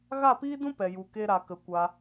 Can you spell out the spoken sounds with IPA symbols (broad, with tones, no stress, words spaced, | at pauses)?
ɣa˦˨piː˦dũ˦ pɛ˨ju˨ke˧ ɾa˨kə˨ kʷa˧